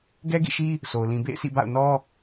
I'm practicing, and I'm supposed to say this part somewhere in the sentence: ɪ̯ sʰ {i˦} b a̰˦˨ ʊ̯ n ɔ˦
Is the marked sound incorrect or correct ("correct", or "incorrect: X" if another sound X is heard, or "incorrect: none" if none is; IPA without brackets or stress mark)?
incorrect: ḭ˦˨